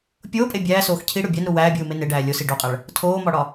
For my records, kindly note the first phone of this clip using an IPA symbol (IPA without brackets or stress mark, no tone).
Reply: pʲ